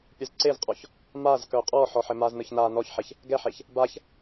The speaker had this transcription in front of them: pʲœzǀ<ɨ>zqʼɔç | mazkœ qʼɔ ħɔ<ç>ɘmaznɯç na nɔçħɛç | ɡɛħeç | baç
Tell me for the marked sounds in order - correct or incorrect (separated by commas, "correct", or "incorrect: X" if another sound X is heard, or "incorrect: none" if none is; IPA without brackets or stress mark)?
incorrect: e, incorrect: ħ